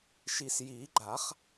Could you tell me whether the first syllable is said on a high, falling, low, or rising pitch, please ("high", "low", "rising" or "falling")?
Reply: low